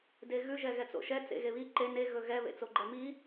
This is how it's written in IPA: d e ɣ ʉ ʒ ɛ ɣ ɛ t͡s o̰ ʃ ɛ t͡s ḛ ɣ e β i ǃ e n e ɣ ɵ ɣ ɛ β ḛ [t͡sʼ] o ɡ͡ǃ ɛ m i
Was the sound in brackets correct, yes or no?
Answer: no